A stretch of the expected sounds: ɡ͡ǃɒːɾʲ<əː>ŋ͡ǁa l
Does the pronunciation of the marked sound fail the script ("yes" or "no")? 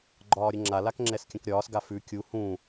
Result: yes